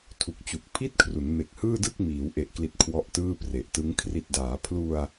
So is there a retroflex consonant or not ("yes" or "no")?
no